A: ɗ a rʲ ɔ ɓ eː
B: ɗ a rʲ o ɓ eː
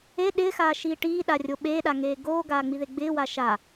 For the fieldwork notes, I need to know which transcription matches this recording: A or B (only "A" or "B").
B